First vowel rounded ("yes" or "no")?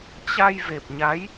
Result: no